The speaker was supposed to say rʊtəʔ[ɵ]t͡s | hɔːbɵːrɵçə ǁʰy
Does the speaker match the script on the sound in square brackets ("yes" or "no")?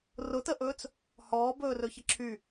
no